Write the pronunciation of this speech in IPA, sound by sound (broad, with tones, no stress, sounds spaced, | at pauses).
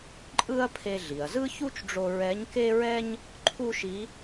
ǃʼ ɯ˥ ɐ̯ pʰ e˧ ɮ i˩ ɐ̯ z ɯ˥ ç u˥ t͡ʃ ɖ͡ʐ o˧ ɹ ɛ˧˥ ɲ k e˥ ɹ ɛ˥ ɲ | ǃʰ u˥ ʃ i˧˥